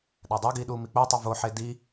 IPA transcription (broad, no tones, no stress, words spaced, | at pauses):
ɗædˤoɡiː ɗuːmik͡potˤo voħe di